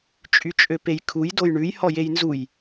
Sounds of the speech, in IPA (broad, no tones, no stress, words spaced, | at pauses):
t͡ʃʼyt͡ʃʼøpejkʰuj dojɳʉj hɔjejnzuj